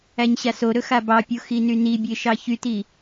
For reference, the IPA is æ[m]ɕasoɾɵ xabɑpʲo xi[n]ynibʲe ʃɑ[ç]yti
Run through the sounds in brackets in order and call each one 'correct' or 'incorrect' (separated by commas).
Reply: incorrect, correct, correct